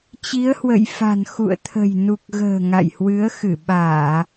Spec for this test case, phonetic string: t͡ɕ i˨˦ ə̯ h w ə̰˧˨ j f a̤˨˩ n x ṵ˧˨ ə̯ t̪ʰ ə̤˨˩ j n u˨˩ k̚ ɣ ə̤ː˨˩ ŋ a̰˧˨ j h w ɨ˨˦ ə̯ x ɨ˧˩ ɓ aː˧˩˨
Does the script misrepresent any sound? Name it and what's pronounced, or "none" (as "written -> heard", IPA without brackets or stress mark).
none